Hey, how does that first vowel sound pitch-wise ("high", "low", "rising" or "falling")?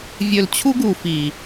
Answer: low